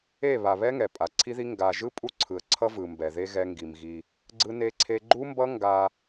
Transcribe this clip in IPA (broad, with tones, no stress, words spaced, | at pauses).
e˦˨ βa˨βɛ˦ ŋɛ˨pʼa˨ǀʰi˦ði˦ ŋɡa˨ʒɯ˦ pʼu˦ǀʰɯ˨ə̯ǀʰʌ˦vɯ˨ mbɛ˨ðe˦ ɣɛ˦ŋɡi˨mɣi˦ | ɡ͡ǀɯ˦ne˦ǀʰe˦ ɡ͡ǃu˦mbʌ˦ ŋɡa˦